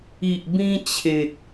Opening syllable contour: low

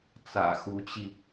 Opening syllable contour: low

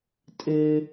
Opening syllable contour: high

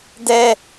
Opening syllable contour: low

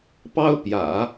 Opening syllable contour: high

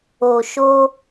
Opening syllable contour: low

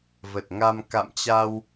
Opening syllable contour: low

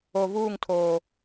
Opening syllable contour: low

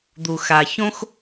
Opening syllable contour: low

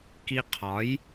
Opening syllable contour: high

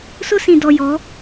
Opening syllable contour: high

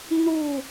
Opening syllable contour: falling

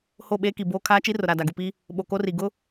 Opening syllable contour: falling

